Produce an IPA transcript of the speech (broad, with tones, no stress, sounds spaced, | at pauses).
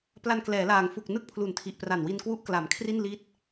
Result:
p l a˧ n k l ɛː˩˦ l aː˩˦ ŋ f u˨˩ k̚ n ɯ˥˩ k̚ pʰ l u˩˦ n tʰ i˨˩ ʔ p r a˨˩ n w i˧ n k w u˦˥ ʔ k l a˩˦ m kʰ r i˥˩ n l i˦˥ t̚